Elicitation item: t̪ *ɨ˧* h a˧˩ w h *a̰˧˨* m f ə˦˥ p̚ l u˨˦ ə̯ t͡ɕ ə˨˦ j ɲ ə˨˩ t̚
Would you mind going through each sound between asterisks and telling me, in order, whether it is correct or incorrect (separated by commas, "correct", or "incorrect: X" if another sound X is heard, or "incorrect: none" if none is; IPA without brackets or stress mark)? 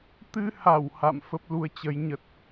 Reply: correct, correct